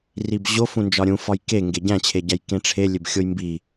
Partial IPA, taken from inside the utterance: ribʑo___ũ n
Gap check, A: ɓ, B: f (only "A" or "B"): B